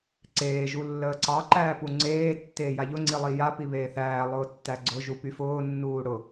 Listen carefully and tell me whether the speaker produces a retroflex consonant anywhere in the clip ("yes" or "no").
yes